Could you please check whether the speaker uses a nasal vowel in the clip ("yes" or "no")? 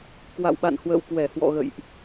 no